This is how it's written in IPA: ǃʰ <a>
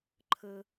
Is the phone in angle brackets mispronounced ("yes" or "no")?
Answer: yes